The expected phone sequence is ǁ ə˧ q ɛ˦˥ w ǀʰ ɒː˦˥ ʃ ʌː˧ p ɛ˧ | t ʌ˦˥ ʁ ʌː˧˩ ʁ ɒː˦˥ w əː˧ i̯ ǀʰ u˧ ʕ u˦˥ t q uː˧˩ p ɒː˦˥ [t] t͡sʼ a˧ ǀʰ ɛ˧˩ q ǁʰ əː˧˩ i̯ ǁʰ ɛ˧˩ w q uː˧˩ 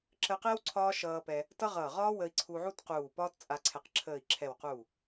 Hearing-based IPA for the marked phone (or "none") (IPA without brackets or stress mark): t